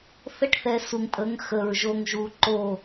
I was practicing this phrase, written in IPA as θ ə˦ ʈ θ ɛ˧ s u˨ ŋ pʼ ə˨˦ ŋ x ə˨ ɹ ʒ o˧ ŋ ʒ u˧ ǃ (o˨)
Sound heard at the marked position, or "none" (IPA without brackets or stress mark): o˦˨